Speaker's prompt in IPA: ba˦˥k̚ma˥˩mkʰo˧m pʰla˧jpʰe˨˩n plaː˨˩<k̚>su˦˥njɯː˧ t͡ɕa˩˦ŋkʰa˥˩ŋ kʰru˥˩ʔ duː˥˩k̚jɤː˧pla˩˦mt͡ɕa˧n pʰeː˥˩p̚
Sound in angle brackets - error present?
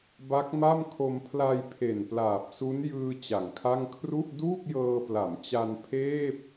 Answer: yes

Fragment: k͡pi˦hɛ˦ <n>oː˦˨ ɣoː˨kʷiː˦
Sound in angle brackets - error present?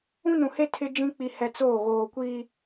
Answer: yes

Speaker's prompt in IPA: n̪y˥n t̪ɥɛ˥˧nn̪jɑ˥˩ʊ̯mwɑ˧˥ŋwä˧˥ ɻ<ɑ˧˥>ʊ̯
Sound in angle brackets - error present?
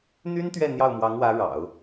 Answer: yes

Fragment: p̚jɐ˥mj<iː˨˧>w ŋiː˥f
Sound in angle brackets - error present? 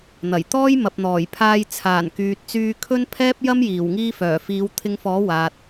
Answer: yes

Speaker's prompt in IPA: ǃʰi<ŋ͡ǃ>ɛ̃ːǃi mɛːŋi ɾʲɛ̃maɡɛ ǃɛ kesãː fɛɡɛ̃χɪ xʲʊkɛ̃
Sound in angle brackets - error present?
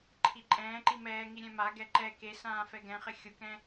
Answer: yes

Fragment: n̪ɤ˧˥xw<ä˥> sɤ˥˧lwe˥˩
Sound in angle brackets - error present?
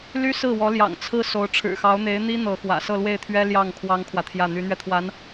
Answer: yes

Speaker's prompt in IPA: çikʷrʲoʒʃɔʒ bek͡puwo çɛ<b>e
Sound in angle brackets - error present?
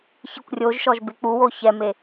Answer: yes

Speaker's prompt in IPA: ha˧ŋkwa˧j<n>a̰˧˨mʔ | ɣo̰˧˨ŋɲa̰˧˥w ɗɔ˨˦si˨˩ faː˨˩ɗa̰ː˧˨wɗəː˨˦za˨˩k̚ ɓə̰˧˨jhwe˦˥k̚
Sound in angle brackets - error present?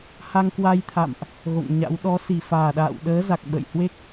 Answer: yes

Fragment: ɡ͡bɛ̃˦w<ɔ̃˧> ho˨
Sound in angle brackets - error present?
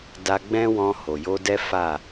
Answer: no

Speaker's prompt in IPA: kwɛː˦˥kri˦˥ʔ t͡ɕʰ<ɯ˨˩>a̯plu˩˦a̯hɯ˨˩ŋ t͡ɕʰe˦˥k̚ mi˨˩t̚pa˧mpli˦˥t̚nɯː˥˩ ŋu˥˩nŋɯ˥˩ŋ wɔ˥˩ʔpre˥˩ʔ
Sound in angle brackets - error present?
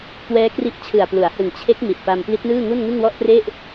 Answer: no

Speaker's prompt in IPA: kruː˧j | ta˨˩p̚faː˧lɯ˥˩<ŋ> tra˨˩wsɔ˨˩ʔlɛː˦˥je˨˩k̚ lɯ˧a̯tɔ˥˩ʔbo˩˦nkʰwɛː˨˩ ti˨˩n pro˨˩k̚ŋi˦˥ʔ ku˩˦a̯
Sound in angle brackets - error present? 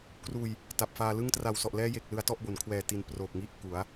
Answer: no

